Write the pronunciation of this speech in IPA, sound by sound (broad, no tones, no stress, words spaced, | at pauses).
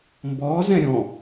mbɔ zɛ̃ɾʲɔ̃